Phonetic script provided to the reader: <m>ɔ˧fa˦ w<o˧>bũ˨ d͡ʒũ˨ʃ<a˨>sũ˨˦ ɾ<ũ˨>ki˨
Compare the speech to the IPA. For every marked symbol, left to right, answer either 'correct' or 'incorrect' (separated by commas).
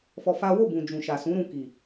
incorrect, incorrect, correct, incorrect